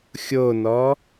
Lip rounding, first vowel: rounded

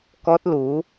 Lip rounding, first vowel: rounded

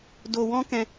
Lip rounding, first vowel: rounded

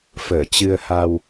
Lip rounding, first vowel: unrounded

